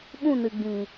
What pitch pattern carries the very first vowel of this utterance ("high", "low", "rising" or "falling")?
falling